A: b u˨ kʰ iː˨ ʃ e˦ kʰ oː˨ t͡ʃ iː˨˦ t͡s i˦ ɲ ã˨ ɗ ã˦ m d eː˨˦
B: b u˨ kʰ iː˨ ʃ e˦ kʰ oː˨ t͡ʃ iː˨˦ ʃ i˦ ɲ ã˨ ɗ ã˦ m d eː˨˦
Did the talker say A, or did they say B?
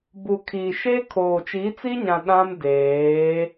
A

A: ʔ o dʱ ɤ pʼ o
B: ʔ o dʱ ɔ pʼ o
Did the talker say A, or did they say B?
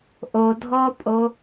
B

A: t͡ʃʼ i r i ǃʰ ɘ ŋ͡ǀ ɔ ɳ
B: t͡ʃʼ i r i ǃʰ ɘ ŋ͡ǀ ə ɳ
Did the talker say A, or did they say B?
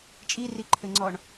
A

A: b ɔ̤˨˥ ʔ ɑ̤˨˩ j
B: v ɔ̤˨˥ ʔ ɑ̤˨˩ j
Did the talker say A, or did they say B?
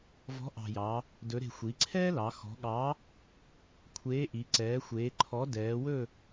B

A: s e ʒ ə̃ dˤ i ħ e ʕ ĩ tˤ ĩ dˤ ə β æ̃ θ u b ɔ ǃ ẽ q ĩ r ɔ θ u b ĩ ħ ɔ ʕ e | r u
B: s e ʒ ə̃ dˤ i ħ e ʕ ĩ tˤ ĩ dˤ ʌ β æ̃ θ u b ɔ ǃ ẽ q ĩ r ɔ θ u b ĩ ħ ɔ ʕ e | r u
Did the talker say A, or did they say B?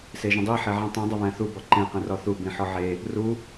A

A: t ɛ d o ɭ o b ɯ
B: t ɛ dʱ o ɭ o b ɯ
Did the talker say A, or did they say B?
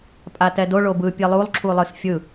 A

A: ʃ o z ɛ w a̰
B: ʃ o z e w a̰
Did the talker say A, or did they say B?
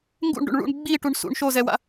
A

